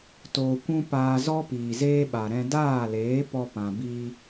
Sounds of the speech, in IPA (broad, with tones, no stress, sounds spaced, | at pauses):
t oː˧ kʷ ũ˦ p aː˧ z ɔ˦ p iː˨ z eː˦ ɓ a˨ ɾ ɛ̃˧ d aː˦˨ l eː˨˦ p ɔ˧ p ã˨ b iː˧